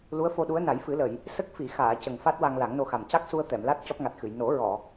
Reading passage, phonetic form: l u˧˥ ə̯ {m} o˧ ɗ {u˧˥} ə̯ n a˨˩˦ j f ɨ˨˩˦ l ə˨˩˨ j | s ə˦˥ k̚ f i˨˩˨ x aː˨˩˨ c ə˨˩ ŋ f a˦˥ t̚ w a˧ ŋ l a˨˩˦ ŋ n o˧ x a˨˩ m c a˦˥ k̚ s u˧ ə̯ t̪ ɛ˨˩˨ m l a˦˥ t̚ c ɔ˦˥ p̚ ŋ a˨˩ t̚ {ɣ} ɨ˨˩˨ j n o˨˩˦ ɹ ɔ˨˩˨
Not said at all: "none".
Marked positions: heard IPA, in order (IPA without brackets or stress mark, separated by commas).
f, u˧˥, x